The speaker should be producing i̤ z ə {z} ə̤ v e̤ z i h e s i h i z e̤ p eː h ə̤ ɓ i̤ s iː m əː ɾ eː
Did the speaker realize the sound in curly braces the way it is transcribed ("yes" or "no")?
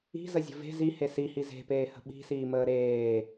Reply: no